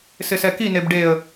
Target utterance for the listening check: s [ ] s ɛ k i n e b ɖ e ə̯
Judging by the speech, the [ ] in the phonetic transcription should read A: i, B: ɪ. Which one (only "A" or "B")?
B